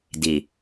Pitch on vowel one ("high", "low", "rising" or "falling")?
low